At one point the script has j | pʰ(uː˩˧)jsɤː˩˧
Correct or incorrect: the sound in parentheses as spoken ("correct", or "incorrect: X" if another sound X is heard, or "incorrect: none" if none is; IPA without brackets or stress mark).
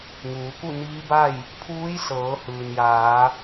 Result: incorrect: uː˧˥